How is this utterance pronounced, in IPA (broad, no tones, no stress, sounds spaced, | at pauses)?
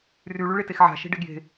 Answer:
r y ɭ y ɭ e t e x ʕ a̤ ʃ e̤ ɖ e ɡ j e̤